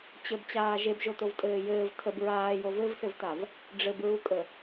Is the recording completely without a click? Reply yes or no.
yes